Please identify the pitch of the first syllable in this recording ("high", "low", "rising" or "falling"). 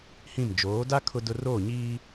falling